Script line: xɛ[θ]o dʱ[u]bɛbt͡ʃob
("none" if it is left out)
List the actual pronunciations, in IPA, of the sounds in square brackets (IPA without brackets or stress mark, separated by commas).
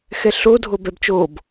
ɬ, o